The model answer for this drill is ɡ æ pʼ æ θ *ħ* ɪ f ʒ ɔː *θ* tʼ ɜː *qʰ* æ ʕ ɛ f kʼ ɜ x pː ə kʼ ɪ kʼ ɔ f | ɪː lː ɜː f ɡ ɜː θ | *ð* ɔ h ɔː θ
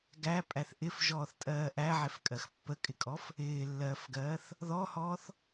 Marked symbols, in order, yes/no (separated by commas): no, yes, no, yes